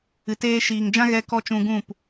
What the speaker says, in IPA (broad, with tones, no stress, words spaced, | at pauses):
ɨ˨teː˧ʃiː˨ŋd͡ʒã˦ ɣɛ˦kɔ˦ t͡ʃũ˧ɡũ˦˨p